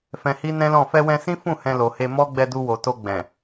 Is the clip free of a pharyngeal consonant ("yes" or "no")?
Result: yes